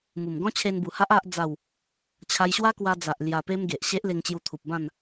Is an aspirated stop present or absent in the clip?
present